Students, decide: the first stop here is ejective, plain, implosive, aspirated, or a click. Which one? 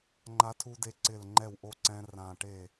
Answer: click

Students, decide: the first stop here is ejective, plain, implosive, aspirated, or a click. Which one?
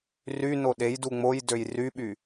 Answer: implosive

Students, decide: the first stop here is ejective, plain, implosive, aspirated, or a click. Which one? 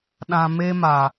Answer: implosive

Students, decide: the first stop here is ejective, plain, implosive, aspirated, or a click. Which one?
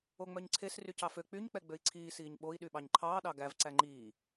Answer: click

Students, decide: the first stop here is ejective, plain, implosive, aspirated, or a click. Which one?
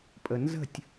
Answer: ejective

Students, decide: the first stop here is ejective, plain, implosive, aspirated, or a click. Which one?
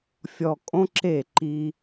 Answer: ejective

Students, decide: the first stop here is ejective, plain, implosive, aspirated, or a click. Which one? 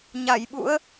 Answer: implosive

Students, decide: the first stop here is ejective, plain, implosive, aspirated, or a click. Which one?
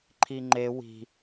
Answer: click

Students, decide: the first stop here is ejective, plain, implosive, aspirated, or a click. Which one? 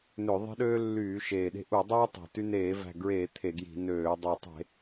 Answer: implosive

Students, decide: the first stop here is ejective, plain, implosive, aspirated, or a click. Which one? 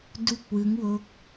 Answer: plain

